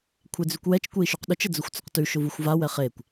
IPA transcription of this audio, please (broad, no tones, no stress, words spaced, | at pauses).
kʷʰed͡zʉkʷwɛt͡ʃ kʷei̯ʃyqɗʊt͡ʃ əd͡zʊxʷt͡sʊqtʉ ʃʊvuxʷva wɛχekʷ